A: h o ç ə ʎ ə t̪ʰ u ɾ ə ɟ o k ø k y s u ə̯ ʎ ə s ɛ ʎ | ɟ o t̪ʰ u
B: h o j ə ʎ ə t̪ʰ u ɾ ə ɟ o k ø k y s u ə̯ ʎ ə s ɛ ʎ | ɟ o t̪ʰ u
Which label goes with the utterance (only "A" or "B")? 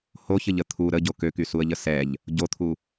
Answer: A